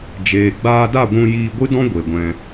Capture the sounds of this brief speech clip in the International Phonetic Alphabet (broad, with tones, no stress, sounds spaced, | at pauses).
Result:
d͡ʒ eː˨ ɡ͡b aː˧ d a˦˨ ɡʷ ũ˧ j iː˧ ɡʷ ɨ˦ d ɔ̃˦ ɡʷ e˨ ɡʷ ɛ̃˧